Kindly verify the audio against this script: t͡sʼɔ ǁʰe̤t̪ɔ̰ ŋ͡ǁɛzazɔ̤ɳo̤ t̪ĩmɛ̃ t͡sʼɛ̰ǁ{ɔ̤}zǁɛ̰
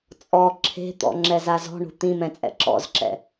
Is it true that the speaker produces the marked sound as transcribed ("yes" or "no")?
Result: no